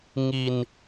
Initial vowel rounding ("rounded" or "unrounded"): unrounded